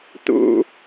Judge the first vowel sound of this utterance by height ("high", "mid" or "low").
high